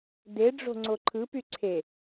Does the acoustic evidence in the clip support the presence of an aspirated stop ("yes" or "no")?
yes